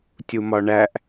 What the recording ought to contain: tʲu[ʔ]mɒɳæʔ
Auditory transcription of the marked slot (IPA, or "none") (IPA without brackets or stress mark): none